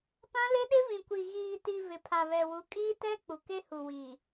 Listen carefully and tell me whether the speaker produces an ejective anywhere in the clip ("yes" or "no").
yes